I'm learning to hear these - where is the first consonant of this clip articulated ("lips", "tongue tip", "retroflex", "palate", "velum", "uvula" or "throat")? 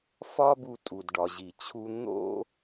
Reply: lips